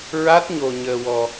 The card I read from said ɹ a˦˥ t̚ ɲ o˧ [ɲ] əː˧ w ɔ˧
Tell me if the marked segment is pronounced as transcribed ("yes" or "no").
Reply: yes